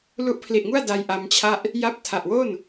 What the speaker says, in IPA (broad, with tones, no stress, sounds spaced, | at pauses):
l u˦˥ ʔ pʰ l i˨˩ ʔ ŋ u˥˩ a̯ d a˧ j ʔ a˧ m t͡ɕʰ a˥˩ ʔ | j a˦˥ p̚ tʰ a˨˩ ʔ w o˥˩ n